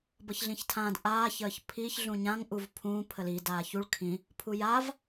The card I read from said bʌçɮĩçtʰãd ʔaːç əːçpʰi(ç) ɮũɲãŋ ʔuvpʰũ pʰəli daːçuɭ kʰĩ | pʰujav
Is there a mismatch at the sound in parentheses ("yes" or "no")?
no